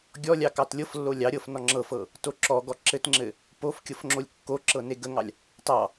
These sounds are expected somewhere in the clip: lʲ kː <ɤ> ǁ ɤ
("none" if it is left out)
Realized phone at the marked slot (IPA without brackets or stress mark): o